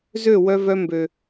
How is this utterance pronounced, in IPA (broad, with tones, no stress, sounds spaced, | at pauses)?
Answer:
z ø˦˨ w œ˧ v œ˧ m b ø˨